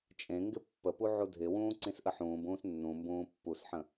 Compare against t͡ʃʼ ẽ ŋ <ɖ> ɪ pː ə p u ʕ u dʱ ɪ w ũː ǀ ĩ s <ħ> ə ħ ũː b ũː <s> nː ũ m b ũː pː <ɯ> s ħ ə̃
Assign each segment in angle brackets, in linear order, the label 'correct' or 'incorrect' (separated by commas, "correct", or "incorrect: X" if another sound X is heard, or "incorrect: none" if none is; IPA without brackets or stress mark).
incorrect: ɡ, incorrect: ʔ, correct, incorrect: u